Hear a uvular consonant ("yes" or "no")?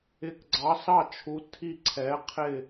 yes